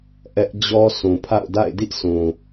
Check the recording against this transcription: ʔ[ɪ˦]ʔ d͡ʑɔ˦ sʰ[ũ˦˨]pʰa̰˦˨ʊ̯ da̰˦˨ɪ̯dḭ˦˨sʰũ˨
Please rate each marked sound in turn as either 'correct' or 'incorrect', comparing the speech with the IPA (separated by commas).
incorrect, incorrect